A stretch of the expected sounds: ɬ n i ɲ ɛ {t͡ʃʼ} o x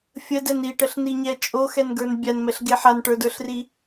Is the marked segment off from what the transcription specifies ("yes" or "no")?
no